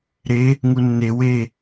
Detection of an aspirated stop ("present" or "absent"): absent